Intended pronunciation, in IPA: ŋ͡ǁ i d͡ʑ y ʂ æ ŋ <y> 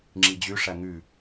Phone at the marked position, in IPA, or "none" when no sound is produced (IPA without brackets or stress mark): y